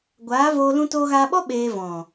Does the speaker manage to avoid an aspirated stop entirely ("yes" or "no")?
yes